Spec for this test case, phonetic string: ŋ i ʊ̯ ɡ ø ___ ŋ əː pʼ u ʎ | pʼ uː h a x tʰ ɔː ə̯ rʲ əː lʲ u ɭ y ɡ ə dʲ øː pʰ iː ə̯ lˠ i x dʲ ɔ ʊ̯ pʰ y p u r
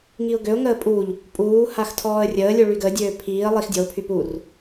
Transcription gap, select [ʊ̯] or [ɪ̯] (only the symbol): ʊ̯